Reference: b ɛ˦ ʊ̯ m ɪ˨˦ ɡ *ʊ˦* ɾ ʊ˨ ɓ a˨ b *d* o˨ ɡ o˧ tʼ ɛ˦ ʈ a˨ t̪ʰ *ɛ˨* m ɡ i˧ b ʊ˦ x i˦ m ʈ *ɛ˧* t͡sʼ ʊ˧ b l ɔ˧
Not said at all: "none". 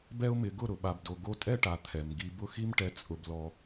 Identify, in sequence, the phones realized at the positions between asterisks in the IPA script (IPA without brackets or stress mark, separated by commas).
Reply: ʊ˦˨, d, ɛ˨, ɛ˧